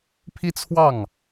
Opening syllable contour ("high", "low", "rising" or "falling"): high